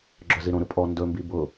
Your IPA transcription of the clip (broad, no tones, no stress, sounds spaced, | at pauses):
ɡ͡ǁ œ z i ɾ õ ɾ ɯ pʼ ɔ n d ɵ m b i b ʊ